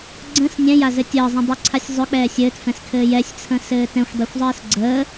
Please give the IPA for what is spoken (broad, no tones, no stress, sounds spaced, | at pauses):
ɡ͡ǀ ə̃ s nʲ ɛ̃ j a z ɘ tʲ əː zˤ ɛ̃ dˤ ɵ ǀʰ a sʲ zˤ ɵ k͡p ɛː sʲ ɘː t f ɛ̃ s kʰ ɘː j ɛ sʲ t͡sʰ ə̃ s ɘː t ɛ̃ xʷ dˤ ɵ xʷ zˤ əː s ɡ͡ǀ əː